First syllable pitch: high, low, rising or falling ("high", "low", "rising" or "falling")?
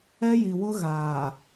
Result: high